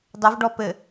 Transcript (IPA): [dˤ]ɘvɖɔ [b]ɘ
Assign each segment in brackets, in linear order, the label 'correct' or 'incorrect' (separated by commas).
correct, incorrect